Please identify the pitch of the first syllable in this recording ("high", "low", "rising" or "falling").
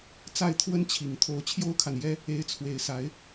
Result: falling